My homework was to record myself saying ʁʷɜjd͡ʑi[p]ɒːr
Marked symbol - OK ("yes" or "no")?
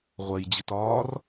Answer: no